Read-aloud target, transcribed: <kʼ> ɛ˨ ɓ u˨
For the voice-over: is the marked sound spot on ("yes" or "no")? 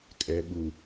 yes